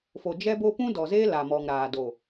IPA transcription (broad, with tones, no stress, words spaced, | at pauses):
fo˨d͡ʒɛ˦bo˦ pũ˦dɔ˨zeː˦ la˨mɔ˨ŋ ɾaː˨do˨